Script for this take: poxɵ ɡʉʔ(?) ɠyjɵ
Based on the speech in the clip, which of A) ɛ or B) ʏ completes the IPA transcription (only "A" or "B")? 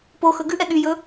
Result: A